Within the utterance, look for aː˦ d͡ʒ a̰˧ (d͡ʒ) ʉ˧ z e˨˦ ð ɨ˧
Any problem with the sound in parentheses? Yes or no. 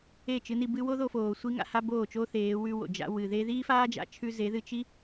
yes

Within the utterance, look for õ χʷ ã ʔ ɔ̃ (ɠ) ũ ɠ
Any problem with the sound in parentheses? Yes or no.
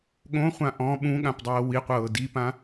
yes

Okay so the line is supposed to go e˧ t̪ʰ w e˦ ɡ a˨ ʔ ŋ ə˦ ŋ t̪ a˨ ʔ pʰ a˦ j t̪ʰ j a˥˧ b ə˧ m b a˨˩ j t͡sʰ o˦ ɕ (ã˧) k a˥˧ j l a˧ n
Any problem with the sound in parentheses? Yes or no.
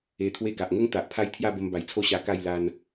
yes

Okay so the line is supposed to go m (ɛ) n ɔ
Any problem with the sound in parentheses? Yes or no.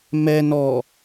no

